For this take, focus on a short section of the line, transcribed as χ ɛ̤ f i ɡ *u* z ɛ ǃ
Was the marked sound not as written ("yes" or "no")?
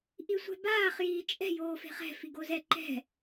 yes